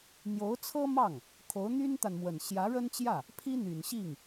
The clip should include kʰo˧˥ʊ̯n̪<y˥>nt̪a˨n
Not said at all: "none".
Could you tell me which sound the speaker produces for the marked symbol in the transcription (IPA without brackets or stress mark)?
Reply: y˥